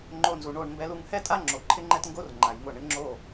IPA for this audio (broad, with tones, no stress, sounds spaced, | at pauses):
ŋ͡ǃ o˧ n z u˩ ɳ o˥˩ ɳ m b ɛ˧ l u˧ ŋ h ɛ˥ tʼ a˥ ŋ͡ǁ o˩ ǃʰ ɪ˥ ŋ͡ǃ ɛ˥ t ŋ ɡ o˥ r ŋ͡ǃ a˩ j ŋ ʊ˥˩ ɳ ɪ˥ ŋ͡ǁ o˥˩